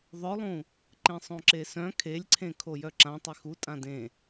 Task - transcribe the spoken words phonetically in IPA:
ðˤœlˠũ | ǃẽsˤõǁesœ̃ kʰelʲǀʰẽ kʰojœǁã tˤexu tʼãdẽ

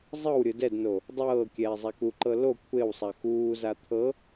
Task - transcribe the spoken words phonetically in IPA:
zˤɤwɾʲɯ dɛdno | dˤɤː kʲɛːzˤakuǃɤ lo kʷʰewsˤa xuːza t̪ʰɤ

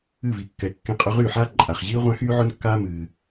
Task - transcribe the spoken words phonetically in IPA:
ɨ˥˩vi˨kːɛ˨ kːẽ˧˥qʼɵ˧˥ʁyː˥˩ħaː˥ ǃʼa˨χʑiː˥ ʁʷã˥xyː˥ʕʊ˥nkːaː˥ mɨː˨

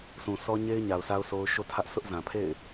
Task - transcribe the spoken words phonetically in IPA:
sʰũ˨ sʰɔ˦ɲe˦ɪ̯ ɲa˨ʊ̯sʰa˦ʊ̯ so˦ʊ̯ ʃo˦tʰä˦ʔ sʊ˦ʔzã˨pʰḛ˦˨ɪ̯

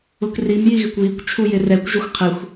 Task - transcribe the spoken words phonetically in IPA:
ʊkrim jiɣɪkʷβikʷ t͡ʃʰujɪrɛkʷʒʊxʷ qʰɪxʷ

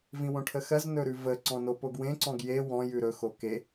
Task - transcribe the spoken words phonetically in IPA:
vĩwõʈʰəxɜz nɵɾʉvə ǀɔ̃nopoɡwẽ ǀɔ̃ɡje wɔ̃ jʉɾɵ xoke

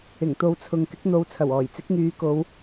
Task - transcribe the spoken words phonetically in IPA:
ɪ˨˩ŋt̪o˨˧wt͡sʰʊ˨ŋ kɪ˨˥k̚n̪o˨˧wt͡sʰɐ˨˩wɔː˨˩j t͡sɪ˨˥k̚ŋyː˨˧ko˨˧w

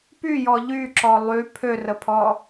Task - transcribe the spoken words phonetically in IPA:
pyjɔ ʎyǁɔ lˠy pʰørəpʰɔ

